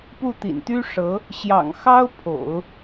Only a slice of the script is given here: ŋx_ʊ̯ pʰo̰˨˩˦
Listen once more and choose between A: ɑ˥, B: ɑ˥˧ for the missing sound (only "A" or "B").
A